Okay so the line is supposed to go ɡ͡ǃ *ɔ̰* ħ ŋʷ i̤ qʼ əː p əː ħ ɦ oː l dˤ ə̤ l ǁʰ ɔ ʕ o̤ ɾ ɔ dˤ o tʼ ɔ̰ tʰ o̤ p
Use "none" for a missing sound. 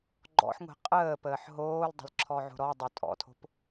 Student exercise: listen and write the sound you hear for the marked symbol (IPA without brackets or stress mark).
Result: ɔ̰